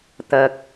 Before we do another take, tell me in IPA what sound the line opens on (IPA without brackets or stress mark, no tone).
t̪